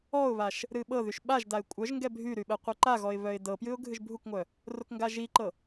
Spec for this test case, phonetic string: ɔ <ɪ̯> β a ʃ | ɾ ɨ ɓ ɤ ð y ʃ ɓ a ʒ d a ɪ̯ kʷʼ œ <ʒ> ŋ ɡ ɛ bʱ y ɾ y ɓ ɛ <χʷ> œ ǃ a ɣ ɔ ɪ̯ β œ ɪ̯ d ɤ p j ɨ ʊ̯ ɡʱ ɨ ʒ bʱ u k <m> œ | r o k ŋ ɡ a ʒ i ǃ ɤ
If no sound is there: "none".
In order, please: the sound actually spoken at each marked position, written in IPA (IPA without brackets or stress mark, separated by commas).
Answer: ʊ̯, ʒ, qʷ, ŋʷ